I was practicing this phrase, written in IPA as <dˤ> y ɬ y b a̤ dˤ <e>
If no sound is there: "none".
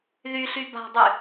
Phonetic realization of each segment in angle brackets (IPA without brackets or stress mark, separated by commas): ð, y